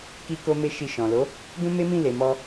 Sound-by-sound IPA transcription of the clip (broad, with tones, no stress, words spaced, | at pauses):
ki˧ko˧me˧ ʃi˧ʃɔ̃˨ lo˨˦ | dũ˦me˦mĩ˦˨ le˨mɔ˧